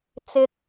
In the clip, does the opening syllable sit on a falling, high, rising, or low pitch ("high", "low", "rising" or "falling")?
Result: high